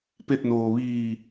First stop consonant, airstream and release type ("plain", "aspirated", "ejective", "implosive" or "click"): plain